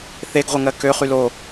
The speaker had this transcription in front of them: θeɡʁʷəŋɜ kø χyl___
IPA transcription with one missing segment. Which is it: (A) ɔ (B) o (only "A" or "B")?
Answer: B